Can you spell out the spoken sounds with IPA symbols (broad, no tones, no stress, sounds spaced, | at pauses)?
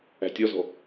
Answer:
æ̤ tʲ ɔ z ɔ̤